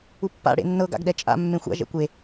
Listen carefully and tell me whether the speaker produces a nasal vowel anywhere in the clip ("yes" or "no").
yes